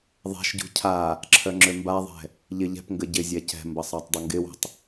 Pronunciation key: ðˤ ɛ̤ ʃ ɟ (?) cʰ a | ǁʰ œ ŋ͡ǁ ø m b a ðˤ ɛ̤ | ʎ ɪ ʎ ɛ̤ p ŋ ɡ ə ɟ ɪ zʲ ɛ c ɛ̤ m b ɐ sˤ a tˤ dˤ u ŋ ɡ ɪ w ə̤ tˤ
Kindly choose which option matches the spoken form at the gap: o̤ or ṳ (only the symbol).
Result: ṳ